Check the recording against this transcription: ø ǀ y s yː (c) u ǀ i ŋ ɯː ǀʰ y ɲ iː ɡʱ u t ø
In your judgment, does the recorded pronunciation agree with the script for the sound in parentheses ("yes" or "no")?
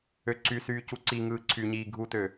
yes